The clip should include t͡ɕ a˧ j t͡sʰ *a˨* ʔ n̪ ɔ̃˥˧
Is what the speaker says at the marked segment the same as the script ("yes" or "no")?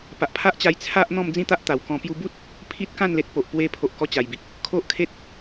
no